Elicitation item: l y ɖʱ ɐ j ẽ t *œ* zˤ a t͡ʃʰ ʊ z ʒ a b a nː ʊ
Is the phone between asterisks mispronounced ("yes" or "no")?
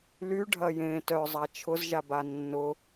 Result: no